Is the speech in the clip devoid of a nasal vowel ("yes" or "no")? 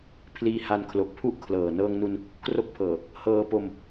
yes